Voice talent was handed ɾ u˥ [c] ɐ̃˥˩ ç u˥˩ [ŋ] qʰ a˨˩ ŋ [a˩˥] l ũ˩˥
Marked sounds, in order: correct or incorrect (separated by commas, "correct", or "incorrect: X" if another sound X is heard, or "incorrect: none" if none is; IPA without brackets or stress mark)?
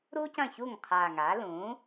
correct, correct, correct